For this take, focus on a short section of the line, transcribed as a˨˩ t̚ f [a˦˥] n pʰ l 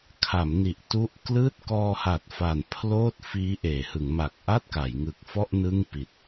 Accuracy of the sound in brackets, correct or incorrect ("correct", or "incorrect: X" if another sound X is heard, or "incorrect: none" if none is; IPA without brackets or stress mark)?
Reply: incorrect: a˨˩